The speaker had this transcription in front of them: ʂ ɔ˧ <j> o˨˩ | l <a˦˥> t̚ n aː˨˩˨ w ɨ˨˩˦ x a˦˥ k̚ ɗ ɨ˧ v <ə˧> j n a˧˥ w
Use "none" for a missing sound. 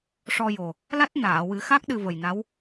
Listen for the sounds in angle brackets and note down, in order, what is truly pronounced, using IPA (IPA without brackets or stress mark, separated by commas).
j, a˦˥, ə˨˩